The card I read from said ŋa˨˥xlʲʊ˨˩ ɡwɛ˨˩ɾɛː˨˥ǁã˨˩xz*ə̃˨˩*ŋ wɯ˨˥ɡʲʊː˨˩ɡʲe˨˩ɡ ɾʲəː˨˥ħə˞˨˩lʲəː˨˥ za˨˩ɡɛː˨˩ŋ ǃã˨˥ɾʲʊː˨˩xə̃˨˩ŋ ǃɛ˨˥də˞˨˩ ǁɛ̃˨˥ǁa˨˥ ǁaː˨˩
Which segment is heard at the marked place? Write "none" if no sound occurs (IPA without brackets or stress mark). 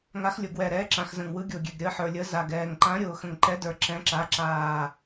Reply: ə̃˨˩